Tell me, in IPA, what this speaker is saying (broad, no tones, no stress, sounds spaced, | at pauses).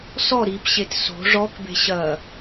s ɔ ɾ i p ɕ e t s o̤ ʐ ɔ k b e̤ ɕ ɐ